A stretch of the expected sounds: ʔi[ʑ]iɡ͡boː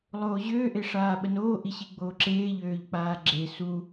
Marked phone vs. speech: incorrect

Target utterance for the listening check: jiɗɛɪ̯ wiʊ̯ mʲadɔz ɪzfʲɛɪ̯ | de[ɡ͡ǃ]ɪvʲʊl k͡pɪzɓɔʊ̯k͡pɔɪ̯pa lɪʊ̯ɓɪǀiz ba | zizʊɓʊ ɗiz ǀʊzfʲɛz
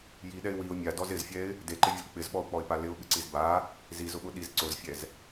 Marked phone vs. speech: incorrect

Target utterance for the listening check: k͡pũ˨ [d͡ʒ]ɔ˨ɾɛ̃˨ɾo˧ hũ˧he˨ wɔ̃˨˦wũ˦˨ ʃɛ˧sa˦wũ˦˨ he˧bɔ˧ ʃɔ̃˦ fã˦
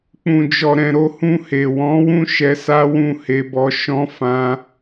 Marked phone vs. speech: correct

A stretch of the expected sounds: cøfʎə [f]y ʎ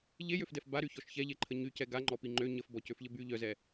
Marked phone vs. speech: incorrect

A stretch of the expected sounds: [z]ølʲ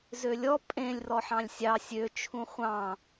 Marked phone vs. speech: correct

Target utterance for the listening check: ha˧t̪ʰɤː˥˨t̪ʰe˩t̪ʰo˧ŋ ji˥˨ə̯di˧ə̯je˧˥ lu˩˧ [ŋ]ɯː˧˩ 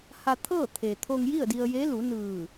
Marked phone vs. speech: incorrect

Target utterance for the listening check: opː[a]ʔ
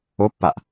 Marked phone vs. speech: correct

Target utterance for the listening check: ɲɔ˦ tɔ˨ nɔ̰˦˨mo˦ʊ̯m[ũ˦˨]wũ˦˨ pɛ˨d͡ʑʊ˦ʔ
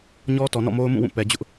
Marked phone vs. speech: correct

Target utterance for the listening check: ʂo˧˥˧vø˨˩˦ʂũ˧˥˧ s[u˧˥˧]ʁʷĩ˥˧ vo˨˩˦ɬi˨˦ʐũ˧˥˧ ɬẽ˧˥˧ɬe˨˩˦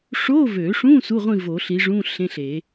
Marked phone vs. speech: correct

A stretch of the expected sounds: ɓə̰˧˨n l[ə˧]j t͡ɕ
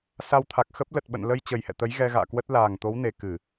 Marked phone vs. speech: correct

